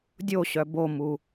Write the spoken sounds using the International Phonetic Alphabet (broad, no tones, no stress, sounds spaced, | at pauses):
dʲ o ɕ œ b o m u